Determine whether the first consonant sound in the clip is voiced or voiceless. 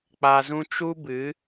voiceless